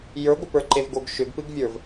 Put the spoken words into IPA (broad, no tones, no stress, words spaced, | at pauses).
jə˞ɡʷə pə˞ǃevɡoɡ ʃʏɡpɨɡvʲə˞v